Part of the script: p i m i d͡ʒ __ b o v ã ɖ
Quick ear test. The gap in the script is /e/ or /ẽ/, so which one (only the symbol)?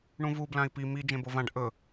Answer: ẽ